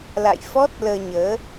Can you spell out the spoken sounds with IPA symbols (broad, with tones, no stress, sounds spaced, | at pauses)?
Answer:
l a̰˧˨ j f ɔ˦˥ t̚ l əː˧ ɲ əː˨˦